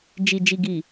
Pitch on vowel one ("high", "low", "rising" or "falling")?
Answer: low